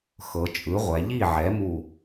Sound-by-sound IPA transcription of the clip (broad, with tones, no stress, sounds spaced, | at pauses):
x ɤ˩˧ t͡ʃʼ ɯ˩˥ ʁʷ ɛ˩˧ ʎ i˥˩ ʕ ɛ˩˥ m u˧˩